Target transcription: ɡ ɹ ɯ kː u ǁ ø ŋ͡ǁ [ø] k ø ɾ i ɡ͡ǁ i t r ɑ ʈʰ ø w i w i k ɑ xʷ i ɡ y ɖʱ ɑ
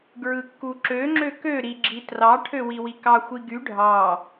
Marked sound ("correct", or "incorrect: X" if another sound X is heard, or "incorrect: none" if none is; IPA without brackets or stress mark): correct